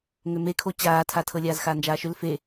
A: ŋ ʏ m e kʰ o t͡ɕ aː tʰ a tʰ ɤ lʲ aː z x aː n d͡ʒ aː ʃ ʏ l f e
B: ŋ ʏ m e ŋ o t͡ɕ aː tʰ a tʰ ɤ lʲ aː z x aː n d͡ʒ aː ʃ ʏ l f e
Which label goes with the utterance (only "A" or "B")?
A